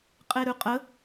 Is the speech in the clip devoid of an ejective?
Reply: no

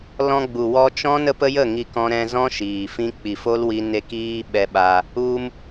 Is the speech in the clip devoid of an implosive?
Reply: no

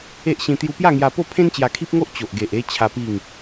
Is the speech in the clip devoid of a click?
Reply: yes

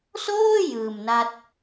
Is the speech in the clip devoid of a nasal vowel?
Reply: yes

